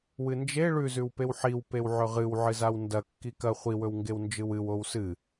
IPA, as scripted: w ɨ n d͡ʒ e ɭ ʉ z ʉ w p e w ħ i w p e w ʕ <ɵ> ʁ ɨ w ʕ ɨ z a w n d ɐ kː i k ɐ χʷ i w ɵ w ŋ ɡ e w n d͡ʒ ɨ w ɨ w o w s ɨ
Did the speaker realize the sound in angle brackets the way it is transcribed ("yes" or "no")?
yes